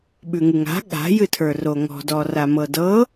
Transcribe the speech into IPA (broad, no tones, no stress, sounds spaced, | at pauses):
ɓ ʉ ŋ ɨ ŋ a̤ ɠ a̤ j ɨ tʰ ə˞ r o ŋ ɔ̤ d ɔ r a m ɤ d ɤ